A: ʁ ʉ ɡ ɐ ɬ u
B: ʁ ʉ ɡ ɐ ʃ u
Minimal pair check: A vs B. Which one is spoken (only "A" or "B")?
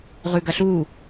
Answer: A